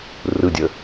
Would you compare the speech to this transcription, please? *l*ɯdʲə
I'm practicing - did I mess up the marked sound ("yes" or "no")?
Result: yes